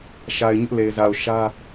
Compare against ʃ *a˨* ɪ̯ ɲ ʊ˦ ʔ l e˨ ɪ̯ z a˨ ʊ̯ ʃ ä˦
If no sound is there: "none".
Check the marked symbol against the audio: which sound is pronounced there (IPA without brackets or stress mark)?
a˨